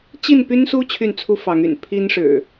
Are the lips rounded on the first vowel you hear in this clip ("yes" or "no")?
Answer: no